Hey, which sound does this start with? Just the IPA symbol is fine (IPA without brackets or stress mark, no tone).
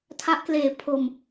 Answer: tʰ